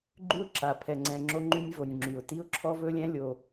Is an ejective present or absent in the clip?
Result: absent